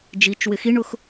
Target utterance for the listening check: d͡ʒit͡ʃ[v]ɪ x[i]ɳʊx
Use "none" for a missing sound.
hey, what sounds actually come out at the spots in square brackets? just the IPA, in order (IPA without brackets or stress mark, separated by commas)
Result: w, i